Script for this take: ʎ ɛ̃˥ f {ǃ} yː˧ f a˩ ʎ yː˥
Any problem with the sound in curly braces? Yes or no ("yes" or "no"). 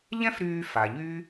yes